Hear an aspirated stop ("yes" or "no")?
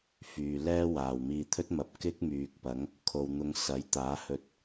yes